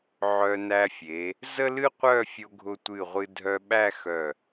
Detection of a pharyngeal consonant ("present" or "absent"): present